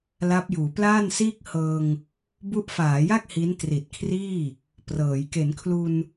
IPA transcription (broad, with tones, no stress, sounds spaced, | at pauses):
l a˦˥ p̚ j uː˩˦ p l aː˥˩ n s iː˥˩ k̚ h ɤː˧ ŋ | b u˦˥ ʔ f aː˩˦ j a˥˩ k̚ h i˦˥ n t r i˨˩ t̚ kʰ r iː˥˩ | p r ɤː˩˦ j k e˩˦ n kʰ l u˧ n